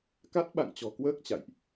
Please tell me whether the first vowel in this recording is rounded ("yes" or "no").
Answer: no